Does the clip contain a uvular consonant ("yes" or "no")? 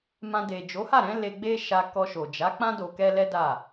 no